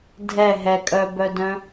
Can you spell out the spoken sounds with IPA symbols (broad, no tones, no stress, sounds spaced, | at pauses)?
dʱ ɛ ɦ ɛ kʼ œ b œ d œ̃